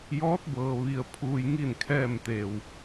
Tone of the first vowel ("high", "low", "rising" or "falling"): rising